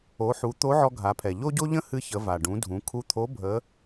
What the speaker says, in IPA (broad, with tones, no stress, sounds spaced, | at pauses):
o˩˧ ħ u˩˧ t̪ o˧˥ ʕ ɔ˧ ɡʱ a˩˧ pʰ ɛ˩ ʎ o˥ ɟ o˥ ʎ ə̃˥ h ɨ˧ ç ə˩˧ v a˩ ɖ ũ˩˧ dʱ ũ˩˧ kʰ u˧ t̪ʰ o˧˥ bʱ ə˧˥